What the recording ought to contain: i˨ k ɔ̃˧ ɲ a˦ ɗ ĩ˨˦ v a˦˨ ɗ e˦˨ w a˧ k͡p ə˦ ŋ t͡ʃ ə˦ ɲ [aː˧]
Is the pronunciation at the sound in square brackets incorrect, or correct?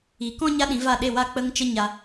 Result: incorrect